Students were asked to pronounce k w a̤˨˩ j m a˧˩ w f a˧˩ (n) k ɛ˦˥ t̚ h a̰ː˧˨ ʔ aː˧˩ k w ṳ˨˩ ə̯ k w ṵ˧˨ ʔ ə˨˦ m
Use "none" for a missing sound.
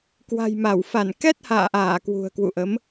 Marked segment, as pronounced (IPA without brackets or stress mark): n